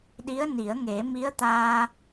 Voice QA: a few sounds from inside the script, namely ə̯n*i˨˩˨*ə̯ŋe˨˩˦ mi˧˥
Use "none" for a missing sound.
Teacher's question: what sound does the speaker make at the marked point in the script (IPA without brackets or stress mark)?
i˨˩˦